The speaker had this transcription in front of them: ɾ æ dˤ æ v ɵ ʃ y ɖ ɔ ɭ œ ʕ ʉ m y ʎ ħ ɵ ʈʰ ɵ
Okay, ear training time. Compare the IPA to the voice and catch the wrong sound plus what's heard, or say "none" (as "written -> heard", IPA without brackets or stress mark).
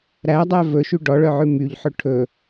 none